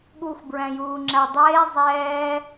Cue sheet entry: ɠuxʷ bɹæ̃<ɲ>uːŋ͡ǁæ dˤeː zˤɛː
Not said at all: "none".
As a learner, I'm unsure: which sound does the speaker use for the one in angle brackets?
j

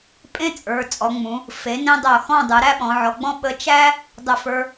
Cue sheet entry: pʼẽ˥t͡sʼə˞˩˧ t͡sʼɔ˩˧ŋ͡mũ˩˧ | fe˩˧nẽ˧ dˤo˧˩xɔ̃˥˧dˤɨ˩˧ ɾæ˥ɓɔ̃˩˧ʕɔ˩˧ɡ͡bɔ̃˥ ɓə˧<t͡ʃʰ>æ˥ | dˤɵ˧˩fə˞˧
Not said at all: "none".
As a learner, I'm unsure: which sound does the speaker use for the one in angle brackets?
t͡ʃ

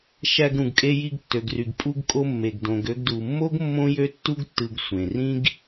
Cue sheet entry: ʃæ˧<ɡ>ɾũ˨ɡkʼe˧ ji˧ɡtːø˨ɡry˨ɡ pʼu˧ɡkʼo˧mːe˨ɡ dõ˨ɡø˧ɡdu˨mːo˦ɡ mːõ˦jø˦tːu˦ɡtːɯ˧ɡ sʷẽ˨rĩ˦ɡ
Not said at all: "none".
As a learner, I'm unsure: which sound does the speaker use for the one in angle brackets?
ɡ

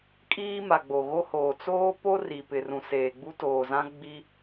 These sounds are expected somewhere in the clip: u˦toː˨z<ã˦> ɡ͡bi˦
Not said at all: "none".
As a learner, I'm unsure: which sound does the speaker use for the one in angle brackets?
ã˦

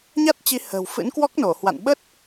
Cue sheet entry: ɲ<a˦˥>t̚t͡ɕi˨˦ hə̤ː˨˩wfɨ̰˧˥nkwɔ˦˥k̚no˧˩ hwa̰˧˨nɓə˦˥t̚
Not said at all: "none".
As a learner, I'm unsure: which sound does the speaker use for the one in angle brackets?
a˦˥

